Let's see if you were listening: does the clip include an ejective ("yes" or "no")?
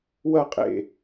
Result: yes